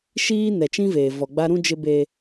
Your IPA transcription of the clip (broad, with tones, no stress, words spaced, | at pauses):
ʃiː˦ nɛ˨t͡ʃĩ˦veː˨ vɔ˨ ɡ͡ba˦ɾũ˦d͡ʒɪ˦be˦